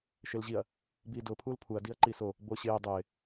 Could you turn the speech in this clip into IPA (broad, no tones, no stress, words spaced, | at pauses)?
ʃelʑiɐ̯ | biːdʊːpʰuːl pʰuɐ̯ diɐ̯ǃiso | boɕɪː dˤɪː